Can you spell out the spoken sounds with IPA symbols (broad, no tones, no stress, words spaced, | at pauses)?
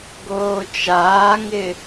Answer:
ɡoːt͡ʃaːŋɪ